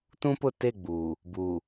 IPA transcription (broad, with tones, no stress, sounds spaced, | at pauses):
t ũ˦ p ʊ˦˨ t e˦˨ ɡ͡b uː˨ | b uː˨